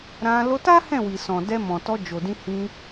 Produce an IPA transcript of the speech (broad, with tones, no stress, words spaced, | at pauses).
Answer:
ɾã˧ lo˧ta˦ hɛ̃˦˨wi˨ sɔ̃˨dɛ˧ mɔ̃˨tɔ˧ d͡ʒo˨dĩ˧ hĩ˧